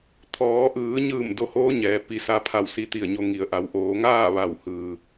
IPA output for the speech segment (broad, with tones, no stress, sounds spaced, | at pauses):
t̪ʰ ɔː˩˧ ʔ ɯː˩˧ ɲ ɯː˧˩ m d o˧ h oː˧˥ ɲ ɛː˩˧ p i˩˧ s a˧ pʰ a˧˩ w s i˧ t̪ i˧˩ ə̯ ɲ o˧ ŋ i˩˧ ə̯ ʔ a˩˧ w ʔ oː˩˧ ŋ aː˥˨ ʋ a˧˩ w h ɯː˩